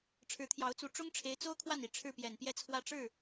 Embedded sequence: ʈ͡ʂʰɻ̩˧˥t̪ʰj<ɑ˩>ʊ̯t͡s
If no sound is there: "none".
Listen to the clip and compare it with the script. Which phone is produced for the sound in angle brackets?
ɑ˧˥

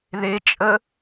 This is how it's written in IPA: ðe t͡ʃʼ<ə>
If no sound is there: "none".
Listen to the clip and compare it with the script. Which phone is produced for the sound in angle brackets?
ə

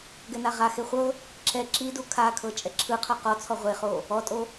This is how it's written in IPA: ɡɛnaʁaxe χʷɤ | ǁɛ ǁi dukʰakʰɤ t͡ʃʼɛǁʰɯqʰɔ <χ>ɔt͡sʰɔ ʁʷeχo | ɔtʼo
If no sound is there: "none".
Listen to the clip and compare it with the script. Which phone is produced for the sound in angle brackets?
q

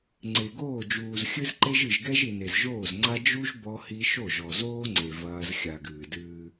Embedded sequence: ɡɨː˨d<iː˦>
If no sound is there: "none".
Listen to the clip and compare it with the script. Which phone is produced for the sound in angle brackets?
ɨː˦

